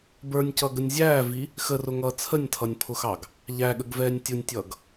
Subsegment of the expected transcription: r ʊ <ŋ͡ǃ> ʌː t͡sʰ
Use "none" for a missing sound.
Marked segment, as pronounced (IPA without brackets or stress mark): ŋ